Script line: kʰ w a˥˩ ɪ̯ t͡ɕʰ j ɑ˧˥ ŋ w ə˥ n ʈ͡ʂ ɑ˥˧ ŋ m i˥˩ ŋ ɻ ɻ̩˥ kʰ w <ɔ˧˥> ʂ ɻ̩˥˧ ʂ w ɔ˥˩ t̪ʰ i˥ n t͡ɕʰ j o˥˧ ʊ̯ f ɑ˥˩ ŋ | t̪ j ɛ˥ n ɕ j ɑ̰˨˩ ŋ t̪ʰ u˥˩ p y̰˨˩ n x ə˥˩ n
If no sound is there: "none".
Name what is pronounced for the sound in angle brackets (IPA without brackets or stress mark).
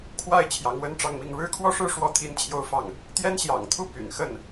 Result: ɔ˥˧